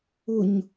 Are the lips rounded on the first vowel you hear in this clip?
yes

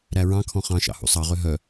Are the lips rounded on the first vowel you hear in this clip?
no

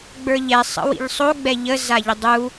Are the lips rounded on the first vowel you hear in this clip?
no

